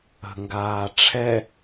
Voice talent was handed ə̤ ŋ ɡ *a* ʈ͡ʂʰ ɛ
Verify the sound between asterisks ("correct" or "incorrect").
incorrect